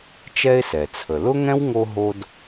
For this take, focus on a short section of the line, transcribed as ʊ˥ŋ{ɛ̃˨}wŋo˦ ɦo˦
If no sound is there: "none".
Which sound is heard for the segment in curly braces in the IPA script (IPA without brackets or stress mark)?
ɛ̃˥